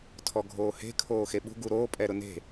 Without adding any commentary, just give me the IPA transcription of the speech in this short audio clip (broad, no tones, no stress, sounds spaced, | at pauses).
tʰ ɔ ɡʱ oː h e̤ kʰ oː x e ɓ ṳ ɡ u ɾ oː pʼ ɛ ɾ ʊ n e̤